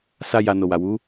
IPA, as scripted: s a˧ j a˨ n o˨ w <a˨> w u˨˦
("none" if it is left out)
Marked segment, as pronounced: a˨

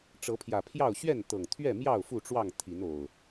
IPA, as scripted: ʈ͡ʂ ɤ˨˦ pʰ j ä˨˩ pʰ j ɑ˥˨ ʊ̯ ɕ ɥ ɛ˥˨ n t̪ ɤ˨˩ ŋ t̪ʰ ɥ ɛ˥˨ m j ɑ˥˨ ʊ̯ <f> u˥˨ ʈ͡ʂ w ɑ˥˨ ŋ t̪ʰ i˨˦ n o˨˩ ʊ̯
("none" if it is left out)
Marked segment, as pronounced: f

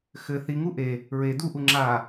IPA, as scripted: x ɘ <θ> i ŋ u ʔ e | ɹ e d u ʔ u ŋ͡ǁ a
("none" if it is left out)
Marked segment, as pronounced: θ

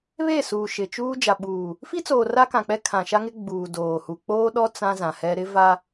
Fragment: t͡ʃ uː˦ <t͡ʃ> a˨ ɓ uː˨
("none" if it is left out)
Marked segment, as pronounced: d͡ʒ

